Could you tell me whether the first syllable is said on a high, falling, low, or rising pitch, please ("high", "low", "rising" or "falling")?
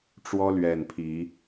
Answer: high